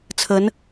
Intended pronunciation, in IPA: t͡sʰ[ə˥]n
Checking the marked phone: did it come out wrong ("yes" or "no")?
yes